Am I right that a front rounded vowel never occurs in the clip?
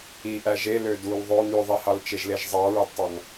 no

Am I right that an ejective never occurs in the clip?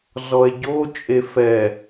no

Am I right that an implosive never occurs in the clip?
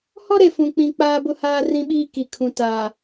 no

